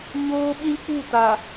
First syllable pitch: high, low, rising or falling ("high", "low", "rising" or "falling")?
high